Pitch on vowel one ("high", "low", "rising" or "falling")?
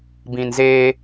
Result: low